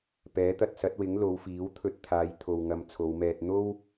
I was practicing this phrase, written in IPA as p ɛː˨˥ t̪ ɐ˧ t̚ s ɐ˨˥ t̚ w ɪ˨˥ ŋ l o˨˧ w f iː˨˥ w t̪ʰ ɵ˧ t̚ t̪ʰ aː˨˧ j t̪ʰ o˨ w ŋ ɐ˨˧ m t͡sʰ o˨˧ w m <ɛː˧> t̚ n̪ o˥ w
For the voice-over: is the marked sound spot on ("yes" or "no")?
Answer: yes